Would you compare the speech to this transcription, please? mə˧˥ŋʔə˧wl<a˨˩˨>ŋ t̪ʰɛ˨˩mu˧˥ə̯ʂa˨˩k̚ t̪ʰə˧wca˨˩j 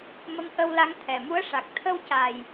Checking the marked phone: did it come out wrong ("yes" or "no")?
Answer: yes